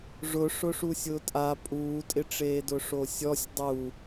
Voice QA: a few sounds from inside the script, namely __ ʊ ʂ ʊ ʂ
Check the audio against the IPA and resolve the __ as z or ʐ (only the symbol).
ʐ